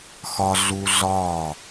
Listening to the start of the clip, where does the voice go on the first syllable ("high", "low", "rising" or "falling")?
high